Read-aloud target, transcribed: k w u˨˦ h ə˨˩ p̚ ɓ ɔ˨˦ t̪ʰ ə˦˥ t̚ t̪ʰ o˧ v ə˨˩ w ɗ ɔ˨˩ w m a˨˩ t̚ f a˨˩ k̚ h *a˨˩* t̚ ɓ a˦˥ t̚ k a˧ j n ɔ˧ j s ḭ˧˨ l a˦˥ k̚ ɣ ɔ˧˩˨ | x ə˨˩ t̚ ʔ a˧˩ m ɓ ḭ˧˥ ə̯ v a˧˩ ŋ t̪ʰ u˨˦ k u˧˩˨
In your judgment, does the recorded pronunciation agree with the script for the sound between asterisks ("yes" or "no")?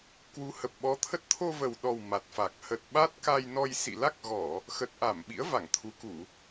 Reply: no